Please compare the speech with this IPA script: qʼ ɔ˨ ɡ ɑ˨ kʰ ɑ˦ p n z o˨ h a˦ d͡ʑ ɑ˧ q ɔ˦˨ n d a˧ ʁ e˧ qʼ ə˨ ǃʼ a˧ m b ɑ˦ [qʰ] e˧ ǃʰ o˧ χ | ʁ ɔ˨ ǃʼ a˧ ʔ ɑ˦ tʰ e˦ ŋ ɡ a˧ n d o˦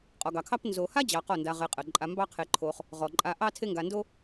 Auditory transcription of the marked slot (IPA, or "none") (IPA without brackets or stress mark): qʰ